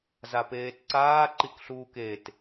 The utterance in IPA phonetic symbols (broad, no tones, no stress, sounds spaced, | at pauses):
z a p eː t ǀ aː ǃ i k ɬ uː k e t